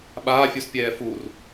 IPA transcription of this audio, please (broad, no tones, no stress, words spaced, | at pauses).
ɓaːfʲuspʲɛː fur